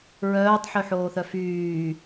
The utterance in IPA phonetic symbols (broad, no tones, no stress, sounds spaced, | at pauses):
ɹ œː tˤ ħ y ħ oː θ œ f yː